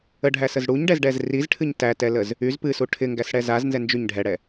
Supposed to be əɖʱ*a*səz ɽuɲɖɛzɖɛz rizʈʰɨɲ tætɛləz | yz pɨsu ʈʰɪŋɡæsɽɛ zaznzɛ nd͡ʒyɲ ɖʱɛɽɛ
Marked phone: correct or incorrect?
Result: incorrect